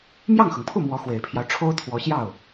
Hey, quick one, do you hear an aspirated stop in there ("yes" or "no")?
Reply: yes